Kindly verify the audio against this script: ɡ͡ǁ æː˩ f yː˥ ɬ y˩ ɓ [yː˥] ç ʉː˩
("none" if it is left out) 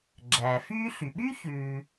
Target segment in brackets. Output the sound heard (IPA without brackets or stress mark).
y˥